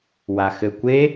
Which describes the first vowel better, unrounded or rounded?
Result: unrounded